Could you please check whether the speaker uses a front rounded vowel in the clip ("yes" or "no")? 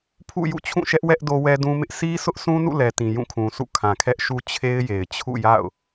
no